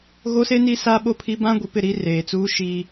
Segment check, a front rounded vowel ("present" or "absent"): absent